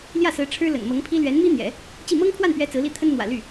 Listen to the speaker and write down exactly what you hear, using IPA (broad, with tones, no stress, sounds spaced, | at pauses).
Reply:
l j ä˥˩ s ɹ̩˧˥ ʈ͡ʂʰ ɻ̩˥ l ə̰˨˩ n m ɤ˧˥ ŋ pʰ i˥ l ɥ ɛ˧˥ n m i˥ n̪ j ɛ̰˨˩˦ | t͡ɕ i˥˩ m ɤ˥ ŋ pʰ w a˥˩ n p ɥ ɛ˧˥ t͡s ɹ̩˧˥ l i˥ t̪ʰ ə˥ n n̪ w ä̰˨˩ l y˥˩